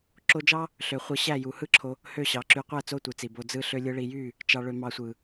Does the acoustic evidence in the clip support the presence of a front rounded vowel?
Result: yes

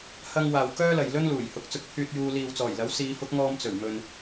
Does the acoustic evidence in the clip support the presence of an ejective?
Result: no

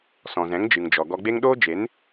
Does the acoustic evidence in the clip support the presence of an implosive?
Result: yes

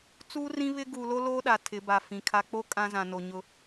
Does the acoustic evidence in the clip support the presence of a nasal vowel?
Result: yes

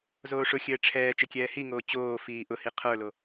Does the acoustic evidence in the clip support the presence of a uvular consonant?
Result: yes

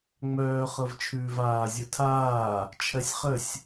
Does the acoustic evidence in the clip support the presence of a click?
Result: no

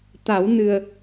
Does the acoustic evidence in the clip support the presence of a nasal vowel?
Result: no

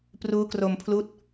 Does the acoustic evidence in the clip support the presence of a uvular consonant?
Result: no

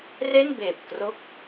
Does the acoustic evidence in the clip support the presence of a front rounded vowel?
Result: no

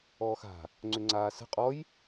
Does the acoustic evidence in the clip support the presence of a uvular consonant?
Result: yes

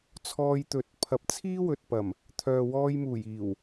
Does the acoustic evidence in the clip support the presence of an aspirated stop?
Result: yes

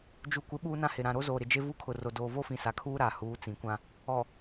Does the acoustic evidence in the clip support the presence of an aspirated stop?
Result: yes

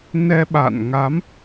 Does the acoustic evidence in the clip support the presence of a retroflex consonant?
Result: no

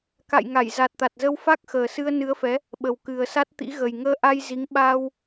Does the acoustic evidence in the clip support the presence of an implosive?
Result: yes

